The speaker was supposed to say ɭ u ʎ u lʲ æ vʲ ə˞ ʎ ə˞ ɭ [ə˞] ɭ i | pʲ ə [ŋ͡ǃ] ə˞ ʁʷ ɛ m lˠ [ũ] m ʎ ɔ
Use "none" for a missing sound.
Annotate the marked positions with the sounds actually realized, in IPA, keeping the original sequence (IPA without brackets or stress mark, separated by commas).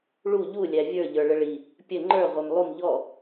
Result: ə, ŋ͡ǃ, u